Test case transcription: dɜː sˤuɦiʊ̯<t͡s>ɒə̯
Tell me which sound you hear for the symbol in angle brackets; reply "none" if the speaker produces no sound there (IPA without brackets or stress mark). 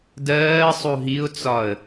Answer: t͡s